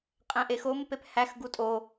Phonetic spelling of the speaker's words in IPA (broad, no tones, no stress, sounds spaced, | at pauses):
qʼ æ̃ ʔ e x o m p e p h æ x ɡ u tʼ o